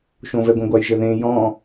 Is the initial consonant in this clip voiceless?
yes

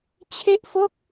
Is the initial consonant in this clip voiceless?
yes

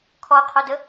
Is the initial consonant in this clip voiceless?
yes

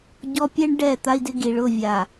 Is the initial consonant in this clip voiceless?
no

